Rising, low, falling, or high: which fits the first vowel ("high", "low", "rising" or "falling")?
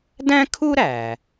high